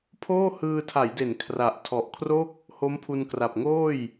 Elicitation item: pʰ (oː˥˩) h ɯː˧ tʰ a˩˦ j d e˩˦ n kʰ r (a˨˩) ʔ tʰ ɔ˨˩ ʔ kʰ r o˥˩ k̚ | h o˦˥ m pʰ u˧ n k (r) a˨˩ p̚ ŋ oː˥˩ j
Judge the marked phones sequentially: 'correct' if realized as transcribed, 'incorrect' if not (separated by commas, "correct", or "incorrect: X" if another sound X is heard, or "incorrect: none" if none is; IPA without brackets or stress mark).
correct, correct, correct